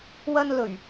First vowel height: low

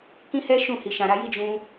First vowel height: high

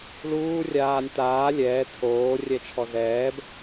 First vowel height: high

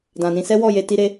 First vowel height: low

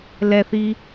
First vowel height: mid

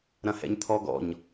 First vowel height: low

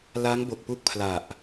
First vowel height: low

